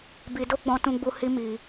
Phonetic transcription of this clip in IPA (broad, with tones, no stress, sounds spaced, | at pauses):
b i˧ d o˦ ɡ͡b ɔ̃˧ t ũ˧ ɡ͡b u˧ h i˧ m i˧